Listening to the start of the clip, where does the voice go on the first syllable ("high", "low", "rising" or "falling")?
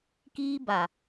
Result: high